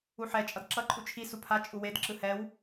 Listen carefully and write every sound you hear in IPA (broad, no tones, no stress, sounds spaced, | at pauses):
u ħ ɛ t͡ʃʼ ʌ d ǁ ʌ ǃʼ u t͡ʃʰ i s u pʰ a t͡ʃʼ u w e d ǁ ɯ h ɛ w